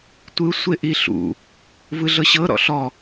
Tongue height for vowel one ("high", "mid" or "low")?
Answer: high